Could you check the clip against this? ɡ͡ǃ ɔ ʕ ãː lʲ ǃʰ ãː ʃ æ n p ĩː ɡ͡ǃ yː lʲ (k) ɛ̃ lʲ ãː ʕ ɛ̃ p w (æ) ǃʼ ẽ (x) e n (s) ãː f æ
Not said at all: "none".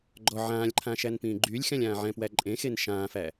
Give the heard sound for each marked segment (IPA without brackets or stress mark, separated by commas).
x, æ, x, ʃ